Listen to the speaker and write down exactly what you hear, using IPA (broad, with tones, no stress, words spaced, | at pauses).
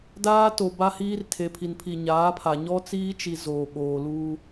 daː˦to˨ ba˦hiː˦rtʰe˨ pʰi˨npʰi˨ɲaː˨˦pʰa˨ ɲɔ˦t͡siː˦t͡ʃi˨ zoː˨ɓoː˨luː˦